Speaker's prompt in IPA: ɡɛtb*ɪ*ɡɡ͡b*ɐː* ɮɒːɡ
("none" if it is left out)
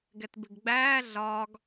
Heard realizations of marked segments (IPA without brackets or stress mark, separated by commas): ɪ, æː